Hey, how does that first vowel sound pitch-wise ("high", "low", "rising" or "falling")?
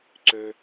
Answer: high